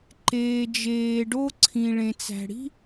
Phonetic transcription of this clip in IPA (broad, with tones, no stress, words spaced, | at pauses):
ǃeː˩d͡ʒeː˩ɖo˥ ǀʰĩ˩ ɭẽ˩t͡sæ̤˩ɽi̤˥